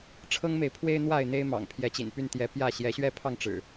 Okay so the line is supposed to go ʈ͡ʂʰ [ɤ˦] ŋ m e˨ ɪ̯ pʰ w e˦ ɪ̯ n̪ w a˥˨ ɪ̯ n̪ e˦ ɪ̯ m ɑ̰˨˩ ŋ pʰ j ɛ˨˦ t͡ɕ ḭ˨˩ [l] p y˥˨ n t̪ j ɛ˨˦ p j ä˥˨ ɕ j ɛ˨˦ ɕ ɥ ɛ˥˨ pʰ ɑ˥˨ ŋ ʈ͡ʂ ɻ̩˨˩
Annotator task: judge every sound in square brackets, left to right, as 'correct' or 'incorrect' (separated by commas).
correct, incorrect